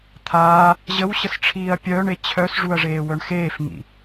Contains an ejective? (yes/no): no